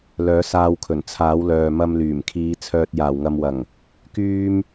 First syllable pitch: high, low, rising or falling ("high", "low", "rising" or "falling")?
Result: rising